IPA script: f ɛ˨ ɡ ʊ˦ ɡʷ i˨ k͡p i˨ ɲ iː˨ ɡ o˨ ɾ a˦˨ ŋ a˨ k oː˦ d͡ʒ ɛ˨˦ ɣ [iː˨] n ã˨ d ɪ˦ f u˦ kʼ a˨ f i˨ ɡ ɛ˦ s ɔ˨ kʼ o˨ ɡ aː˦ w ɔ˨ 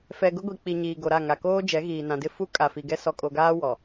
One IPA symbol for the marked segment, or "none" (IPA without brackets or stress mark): iː˨